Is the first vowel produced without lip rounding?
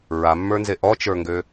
yes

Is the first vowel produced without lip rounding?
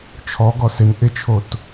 no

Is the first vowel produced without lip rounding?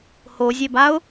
no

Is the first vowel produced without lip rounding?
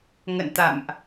yes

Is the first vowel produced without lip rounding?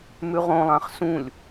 no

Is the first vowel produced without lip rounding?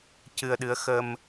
yes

